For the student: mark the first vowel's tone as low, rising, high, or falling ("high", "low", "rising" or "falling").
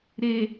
low